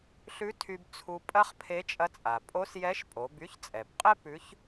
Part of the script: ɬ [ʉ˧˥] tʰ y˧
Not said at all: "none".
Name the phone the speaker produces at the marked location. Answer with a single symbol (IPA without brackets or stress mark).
ʉ˧˥